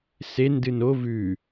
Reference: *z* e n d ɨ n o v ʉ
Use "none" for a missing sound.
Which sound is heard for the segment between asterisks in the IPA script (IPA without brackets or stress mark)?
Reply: s